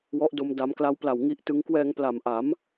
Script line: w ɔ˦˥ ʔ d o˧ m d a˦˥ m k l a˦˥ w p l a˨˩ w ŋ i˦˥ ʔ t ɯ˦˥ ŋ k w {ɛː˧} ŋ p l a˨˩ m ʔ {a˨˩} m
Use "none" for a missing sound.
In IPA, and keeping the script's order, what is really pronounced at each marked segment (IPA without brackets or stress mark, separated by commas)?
ɛː˧, a˩˦